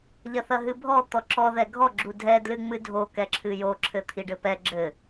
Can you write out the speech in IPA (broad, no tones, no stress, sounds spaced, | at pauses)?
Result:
ʎ ɐ θ ɐ ɦ ɨ bʱ ɔ t̪ ɔ ǁ ɔ ð ɛ ɡʱ ɔ ɡ͡ǁ u dʱ ɛ d l ɨ ŋ͡m ɨ dʱ o k ɛ ǁʰ ɨ j o ǁʰ ɘ t̪ʰ i ɖ ɘ p ɛ ɡ͡ǁ ɘ